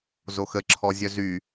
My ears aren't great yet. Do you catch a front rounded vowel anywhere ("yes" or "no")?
yes